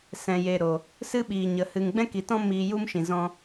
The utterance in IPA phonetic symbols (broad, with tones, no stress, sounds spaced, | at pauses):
s ɛ̃˨ j e˨ ɾ o˨ | s ɨ˦ ɓ iː˨ ɲ ə˨ h ɨ˨ ŋ ɡ͡b ɛ̃˦ k i˨ t ɔ̃˦ m iː˧ j u˦ m ʃ ĩ˨ z ɔ̃˦